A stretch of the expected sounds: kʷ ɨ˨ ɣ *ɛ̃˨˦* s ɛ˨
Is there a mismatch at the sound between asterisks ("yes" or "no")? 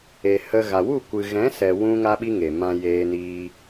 no